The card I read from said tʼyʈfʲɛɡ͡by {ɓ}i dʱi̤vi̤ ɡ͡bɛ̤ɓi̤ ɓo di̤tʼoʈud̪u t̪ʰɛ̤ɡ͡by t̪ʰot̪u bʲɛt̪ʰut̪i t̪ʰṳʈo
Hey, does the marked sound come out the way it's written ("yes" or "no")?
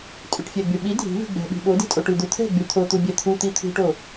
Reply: yes